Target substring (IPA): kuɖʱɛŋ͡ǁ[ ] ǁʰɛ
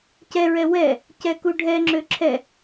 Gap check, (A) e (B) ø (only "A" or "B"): B